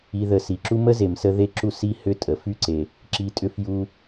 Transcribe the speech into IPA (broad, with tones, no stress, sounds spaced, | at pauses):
i˨ ð ə˨ s i˩ ǁ u˦ m ə˥ z e˩ m s ə˦ ð e˦ ǁ u˦ s i˦ h ʏ˦ tʼ ə˩ f y˥ ǀ e˩ | ǁ i˨ tʼ ʏ˦ f j u˦